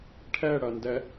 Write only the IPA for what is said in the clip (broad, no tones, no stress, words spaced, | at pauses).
ʈʰɛɽɐndɛ